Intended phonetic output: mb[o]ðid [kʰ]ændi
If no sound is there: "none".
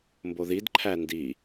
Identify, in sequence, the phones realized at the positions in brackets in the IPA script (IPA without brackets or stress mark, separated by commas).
o, ǃʰ